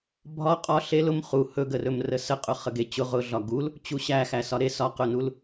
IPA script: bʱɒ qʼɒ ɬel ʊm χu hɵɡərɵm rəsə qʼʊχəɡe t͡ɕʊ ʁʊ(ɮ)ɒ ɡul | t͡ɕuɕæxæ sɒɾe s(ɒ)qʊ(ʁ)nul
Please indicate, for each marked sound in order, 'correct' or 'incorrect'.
correct, correct, incorrect: none

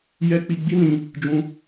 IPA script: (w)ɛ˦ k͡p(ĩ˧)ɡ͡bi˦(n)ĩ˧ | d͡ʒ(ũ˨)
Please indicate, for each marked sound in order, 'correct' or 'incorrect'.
incorrect: j, incorrect: i˧, correct, incorrect: ũ˧

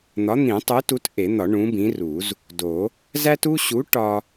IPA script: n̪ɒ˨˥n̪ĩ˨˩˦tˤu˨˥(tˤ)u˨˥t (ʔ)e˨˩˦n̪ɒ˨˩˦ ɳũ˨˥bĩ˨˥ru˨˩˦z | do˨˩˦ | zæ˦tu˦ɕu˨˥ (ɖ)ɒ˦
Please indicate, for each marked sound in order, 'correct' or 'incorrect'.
incorrect: t, correct, incorrect: ʈ

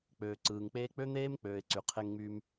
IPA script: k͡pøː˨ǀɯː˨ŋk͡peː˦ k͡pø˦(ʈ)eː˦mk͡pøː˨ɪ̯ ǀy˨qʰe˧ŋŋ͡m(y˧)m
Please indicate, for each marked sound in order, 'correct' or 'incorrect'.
incorrect: n̪, correct

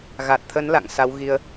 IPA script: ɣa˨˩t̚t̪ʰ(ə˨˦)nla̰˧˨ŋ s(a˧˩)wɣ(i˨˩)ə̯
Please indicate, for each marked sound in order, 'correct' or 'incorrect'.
correct, incorrect: a˨˦, incorrect: i˧

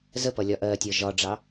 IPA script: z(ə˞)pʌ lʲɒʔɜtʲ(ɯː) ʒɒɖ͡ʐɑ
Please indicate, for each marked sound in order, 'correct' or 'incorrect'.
incorrect: ə, incorrect: əː

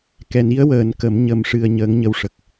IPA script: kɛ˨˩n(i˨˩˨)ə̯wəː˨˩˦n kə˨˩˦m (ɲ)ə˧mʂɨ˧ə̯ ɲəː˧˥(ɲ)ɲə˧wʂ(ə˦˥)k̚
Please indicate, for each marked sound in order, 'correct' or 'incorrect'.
incorrect: i˧˥, correct, incorrect: ŋ, incorrect: ə˨˩

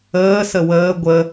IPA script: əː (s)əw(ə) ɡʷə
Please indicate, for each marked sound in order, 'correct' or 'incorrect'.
correct, incorrect: əː

